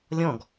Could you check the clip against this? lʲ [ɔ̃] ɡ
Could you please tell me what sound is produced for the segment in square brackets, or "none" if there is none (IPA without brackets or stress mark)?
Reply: ɔ̃